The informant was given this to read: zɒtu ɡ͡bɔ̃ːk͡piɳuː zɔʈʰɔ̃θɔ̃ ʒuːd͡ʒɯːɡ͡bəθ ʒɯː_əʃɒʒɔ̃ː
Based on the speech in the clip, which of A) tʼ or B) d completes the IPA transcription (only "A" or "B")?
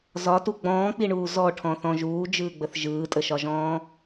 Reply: A